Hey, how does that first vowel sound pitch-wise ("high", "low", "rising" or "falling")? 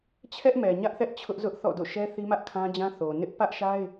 high